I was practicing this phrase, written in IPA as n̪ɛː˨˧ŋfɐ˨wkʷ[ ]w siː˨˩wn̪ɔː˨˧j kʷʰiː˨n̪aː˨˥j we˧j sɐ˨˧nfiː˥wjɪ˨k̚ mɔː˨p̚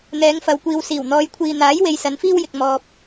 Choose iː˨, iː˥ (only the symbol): iː˨